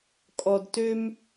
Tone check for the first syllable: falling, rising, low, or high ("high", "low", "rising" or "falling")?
low